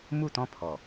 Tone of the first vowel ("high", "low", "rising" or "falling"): falling